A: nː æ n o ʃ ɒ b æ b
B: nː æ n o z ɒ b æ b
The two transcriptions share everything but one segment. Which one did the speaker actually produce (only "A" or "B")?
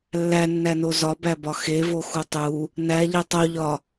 B